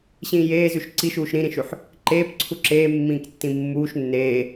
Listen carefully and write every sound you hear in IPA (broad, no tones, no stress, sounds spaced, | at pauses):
ɕ ĩː j eː z ʉ ʃ ǀ i ʃ uː ʃ ɾ ĩ ɾ ĩ ʃ ʉ ħ | ǃ eː p ǀʰ u ǁ eː mː ĩː k tː ĩ mː uː ʃ nː eː